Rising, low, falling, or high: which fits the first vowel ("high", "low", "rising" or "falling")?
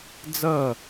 falling